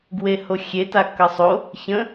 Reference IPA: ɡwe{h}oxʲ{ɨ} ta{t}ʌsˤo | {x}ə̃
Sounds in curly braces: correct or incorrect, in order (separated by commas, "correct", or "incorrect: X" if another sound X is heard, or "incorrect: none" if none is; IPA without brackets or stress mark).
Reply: correct, incorrect: e, incorrect: k, incorrect: ç